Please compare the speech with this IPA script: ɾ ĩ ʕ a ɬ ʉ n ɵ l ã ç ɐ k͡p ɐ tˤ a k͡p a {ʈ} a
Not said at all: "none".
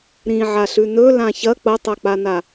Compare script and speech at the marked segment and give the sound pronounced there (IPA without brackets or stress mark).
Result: n